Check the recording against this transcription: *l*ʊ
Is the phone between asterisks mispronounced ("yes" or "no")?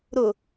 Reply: yes